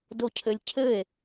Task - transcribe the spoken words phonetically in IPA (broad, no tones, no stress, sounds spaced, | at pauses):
d o cʰ ɘ lʲ cʰ ɘ e̯